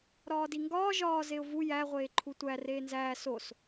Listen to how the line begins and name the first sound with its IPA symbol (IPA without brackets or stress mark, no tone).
ɾ